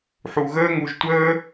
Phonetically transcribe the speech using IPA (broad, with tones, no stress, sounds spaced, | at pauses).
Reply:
ħ u˧ ɣ əː˦ ŋ u˧ ʒ tʷ əː˦